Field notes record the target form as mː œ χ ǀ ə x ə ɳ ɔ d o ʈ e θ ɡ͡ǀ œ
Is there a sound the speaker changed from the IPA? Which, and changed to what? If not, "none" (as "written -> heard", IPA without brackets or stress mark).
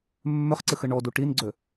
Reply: θ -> n